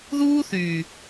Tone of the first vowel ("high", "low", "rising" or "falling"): high